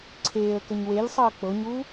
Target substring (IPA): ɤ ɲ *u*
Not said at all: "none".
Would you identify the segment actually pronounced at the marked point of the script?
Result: uː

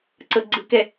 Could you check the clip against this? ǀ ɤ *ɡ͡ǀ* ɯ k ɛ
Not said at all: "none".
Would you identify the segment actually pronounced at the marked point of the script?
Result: ɡ͡ǀ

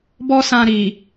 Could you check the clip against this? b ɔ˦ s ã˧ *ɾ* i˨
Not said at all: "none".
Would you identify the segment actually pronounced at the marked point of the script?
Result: ɾ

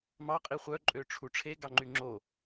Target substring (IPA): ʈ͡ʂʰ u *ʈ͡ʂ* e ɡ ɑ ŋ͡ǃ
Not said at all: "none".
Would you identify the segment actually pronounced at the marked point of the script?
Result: ʈ͡ʂʰ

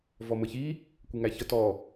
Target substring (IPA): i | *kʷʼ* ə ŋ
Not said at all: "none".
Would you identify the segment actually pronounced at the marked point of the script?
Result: kʷ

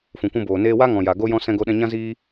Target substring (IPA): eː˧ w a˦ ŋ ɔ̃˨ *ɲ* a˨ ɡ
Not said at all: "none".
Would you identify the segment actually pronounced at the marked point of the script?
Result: j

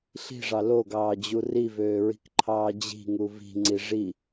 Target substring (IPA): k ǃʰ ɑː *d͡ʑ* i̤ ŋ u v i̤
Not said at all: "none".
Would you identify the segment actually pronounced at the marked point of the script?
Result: d͡ʑ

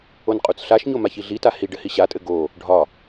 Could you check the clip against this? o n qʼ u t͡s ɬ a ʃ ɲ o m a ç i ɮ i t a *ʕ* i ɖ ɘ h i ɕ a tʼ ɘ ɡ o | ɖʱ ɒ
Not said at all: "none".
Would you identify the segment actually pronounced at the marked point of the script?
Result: h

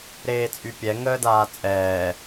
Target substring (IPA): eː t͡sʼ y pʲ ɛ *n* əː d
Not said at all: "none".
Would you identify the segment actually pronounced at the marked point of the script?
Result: ŋ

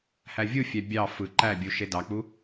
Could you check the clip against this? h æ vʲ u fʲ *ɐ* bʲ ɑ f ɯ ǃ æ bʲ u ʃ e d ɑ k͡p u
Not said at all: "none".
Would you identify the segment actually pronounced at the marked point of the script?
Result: æ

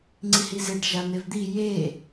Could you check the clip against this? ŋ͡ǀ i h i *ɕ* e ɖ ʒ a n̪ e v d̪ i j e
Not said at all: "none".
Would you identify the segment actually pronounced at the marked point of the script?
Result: z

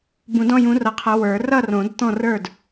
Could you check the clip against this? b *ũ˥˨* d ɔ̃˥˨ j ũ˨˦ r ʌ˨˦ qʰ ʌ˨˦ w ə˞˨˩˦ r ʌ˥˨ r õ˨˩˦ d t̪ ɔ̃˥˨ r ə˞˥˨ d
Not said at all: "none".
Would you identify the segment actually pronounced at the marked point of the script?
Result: ũ˨˩˦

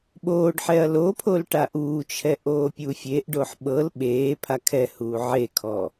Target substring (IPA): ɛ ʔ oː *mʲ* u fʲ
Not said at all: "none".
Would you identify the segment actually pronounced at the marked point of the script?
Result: pʲ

